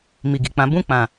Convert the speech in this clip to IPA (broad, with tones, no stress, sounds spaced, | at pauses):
m i˨ ɡ i˨ k͡p ã˨˦ b ũ˦˨ k͡p ã˨